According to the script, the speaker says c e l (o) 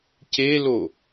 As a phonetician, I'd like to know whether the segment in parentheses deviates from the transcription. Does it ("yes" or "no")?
no